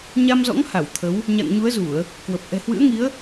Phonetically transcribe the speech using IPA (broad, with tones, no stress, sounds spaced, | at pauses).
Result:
ɲ a˧ m z ɔ̰˧˥ ŋ h a˧˩ w t̪ʰ ə˨˦ w | ɲ a̰˧˨ ŋ ɲ u˨˦ ə̯ z u˧˩˨ ə̯ | k w ə˨˩ p̚ ʔ ɛ̤˨˩ h w ɨ̰˧˥ ə̯ ŋ i˨˦ ə̯